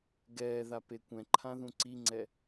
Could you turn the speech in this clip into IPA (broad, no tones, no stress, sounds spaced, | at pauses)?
ɡ ɛː ð a p e kʷ ɛ̃ ǃʰ ã ð ũ ǀ i ŋ͡ǀ ɛ